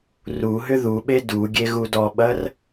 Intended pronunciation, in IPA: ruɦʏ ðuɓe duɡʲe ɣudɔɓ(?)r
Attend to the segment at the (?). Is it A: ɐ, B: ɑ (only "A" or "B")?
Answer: A